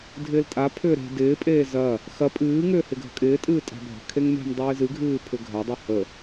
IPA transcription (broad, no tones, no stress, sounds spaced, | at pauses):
dʱ ɪː l tʼ a pʰ ʏː ɾ e̤ d ɪː pʼ eː z ɐ | x ɐ pʼ ɨː ŋ ʏː h ɪ ɡʱ ə̤ kʼ ɪː tʼ ɨː tʼ a̤ bʱ ə̤ kʰ e ŋ m e̤ m dˤ ɨː z ɨ ɡʱ ɨː pʰ ʏ ɡʱ ɐ dˤ i h ə